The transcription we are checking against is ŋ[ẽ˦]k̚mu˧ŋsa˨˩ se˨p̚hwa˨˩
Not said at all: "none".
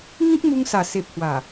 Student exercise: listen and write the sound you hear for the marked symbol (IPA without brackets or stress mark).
ĩ˦